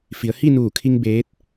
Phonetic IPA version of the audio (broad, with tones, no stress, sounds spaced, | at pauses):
f i˩˧ ə̯ h i˥˨ n uː˧˩ kʰ i˧ ŋ b eː˧˥ t̚